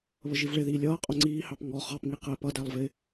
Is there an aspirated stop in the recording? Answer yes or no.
no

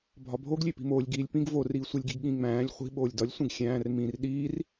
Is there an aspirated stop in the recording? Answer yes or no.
no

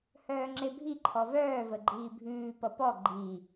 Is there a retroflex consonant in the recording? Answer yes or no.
no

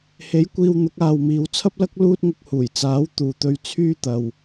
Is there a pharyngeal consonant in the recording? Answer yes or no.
no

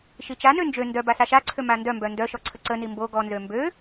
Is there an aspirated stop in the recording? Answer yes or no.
yes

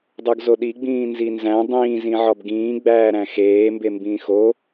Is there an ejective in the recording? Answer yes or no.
no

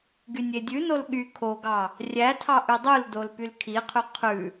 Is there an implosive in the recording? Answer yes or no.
yes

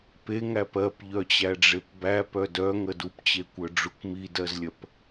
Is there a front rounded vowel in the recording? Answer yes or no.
yes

